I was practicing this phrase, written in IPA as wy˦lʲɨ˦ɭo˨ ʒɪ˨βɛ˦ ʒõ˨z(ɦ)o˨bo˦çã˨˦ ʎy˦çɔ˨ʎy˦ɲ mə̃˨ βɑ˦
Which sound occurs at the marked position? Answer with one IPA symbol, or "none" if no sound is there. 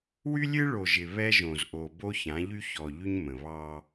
ʔ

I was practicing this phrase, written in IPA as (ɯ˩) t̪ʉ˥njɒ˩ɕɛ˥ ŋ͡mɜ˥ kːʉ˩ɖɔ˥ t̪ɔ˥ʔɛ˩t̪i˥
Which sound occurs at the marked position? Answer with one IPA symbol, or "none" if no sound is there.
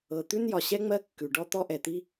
ɤ˩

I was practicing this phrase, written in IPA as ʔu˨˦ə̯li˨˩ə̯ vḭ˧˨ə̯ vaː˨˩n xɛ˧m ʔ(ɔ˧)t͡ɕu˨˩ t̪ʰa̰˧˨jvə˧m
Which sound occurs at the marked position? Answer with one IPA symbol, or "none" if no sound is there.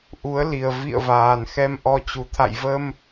ɔ˧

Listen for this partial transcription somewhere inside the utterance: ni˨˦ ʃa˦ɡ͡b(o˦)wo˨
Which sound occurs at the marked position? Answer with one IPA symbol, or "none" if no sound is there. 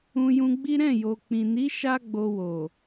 o˧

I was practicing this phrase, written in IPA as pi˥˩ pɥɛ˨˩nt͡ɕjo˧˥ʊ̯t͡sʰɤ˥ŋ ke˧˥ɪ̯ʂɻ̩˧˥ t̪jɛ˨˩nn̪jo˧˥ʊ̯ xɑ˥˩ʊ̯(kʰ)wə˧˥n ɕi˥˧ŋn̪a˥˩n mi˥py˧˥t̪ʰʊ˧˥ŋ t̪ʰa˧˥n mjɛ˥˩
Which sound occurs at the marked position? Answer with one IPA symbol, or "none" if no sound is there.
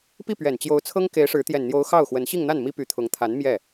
x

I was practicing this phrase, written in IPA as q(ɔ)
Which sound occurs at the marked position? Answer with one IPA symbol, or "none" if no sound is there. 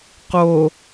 o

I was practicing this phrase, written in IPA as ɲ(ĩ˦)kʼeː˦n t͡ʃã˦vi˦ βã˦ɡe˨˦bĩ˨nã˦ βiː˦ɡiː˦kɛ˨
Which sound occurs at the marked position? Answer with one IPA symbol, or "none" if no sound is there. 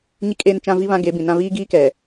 i˦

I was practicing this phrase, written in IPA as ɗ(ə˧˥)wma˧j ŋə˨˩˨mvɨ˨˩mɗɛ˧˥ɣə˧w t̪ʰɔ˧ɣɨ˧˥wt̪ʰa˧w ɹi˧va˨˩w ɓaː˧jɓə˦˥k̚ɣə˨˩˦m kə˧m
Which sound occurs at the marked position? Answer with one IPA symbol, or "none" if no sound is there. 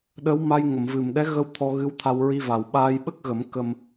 ə˧˥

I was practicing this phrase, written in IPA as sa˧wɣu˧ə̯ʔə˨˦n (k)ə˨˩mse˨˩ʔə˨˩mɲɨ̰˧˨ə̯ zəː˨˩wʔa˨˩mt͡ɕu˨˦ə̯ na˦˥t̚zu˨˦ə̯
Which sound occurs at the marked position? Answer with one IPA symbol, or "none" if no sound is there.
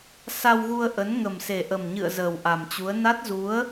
ŋ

